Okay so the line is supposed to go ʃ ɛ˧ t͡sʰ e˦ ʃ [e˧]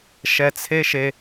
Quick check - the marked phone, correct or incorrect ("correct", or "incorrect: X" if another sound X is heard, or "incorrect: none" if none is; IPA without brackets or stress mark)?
correct